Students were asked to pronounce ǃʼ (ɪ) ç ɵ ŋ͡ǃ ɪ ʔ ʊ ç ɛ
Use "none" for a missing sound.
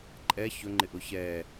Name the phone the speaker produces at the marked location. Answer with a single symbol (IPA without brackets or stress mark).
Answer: ɛ